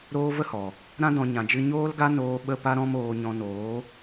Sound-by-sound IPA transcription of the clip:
ɾoː˦ və˦hɔ˨ | ɾã˦dɔ̃˧ ɲã˧d͡ʒɨ˦ ɲoː˦lɡa˦noː˧ ɓə˦pa˦ɾɔ̃˦m oː˧ɲɔ̃˧noː˨˦

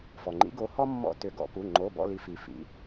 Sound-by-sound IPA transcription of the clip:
fɔ˩ŋ͡ǃḭ˨˦ɡo˨˦hɔ˦ mːɔ̰˦˨ tʏ˨˩˦ɡɔ̰˨˦pu˩˧˩ ŋ͡ǃo˩˧˩bɔ̰˦˨ li˨˦ fi˩fḭ˩˧˩

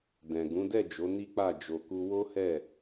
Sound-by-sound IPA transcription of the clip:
dɛ̃˨ ɡũ˨˦dɛ˦˨d͡ʒo˨˦ ni˦k͡pa˦˨ d͡ʒo˧ku˦ wo˦hɛ˦˨

